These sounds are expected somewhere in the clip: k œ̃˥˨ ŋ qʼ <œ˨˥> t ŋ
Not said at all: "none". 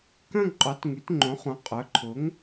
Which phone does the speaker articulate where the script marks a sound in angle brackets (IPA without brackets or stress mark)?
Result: œ˨˥